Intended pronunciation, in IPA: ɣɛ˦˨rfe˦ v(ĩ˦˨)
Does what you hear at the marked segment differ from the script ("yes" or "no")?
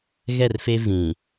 yes